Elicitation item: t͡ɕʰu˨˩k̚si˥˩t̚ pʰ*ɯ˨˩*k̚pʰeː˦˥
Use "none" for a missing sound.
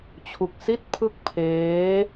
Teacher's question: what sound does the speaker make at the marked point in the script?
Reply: ɯ˥˩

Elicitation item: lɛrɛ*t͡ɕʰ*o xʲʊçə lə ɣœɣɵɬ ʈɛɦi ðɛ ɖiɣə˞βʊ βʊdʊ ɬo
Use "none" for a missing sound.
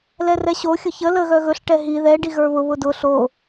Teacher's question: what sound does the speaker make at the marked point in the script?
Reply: ɕ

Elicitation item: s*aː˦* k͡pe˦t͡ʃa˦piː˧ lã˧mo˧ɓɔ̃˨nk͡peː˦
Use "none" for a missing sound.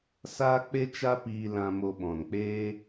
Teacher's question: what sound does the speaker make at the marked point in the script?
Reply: aː˦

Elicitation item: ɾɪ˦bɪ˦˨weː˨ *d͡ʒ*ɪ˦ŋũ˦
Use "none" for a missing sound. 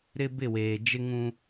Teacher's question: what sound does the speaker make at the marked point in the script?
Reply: d͡ʒ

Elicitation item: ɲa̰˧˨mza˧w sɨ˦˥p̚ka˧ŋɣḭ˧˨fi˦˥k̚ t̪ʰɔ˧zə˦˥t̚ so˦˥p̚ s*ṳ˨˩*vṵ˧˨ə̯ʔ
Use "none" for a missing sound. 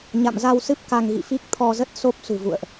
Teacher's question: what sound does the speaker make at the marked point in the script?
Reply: ṳ˨˩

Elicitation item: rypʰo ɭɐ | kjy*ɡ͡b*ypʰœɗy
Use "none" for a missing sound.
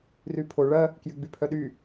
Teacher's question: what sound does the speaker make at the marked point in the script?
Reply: ɡ͡b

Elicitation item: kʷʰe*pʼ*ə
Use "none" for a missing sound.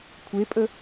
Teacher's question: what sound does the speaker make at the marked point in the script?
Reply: pʼ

